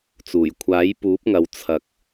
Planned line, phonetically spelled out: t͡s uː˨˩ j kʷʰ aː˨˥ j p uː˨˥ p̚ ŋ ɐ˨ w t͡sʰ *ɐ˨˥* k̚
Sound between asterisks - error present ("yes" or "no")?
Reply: yes